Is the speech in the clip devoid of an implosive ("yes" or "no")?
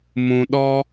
no